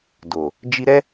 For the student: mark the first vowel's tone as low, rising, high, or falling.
low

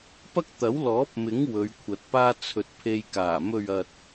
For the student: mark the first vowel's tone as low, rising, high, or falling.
high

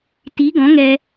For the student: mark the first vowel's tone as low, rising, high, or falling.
rising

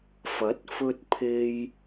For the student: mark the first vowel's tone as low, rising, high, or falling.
rising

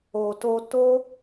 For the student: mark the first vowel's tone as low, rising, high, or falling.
low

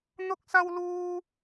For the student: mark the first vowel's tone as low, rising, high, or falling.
high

